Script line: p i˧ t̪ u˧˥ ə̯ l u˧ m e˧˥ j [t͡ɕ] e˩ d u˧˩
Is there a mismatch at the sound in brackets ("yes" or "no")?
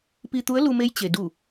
no